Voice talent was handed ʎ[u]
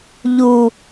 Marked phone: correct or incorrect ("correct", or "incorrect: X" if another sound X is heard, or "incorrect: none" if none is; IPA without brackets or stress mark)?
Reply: correct